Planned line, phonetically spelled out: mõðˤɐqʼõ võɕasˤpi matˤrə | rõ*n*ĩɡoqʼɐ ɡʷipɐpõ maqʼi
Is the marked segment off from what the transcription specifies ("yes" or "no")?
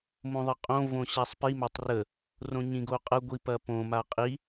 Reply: yes